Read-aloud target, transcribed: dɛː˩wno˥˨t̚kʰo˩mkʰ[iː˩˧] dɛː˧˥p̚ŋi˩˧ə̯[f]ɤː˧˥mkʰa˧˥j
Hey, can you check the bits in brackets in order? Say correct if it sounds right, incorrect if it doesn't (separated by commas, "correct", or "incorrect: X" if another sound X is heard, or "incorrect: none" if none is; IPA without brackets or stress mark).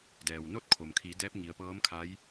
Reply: correct, incorrect: p